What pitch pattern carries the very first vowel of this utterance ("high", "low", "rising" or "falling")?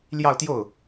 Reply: falling